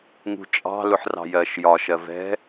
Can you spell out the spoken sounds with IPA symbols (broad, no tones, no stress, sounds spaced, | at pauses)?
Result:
ŋ ṳ t͡ʃʼ ɑ̤ l ʊ ħ r ɑ̤ j ɜ ʃ j ɒ ʃ ɜ v ɛ̤